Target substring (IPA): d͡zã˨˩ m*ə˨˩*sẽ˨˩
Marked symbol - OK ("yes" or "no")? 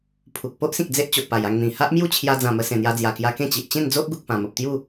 no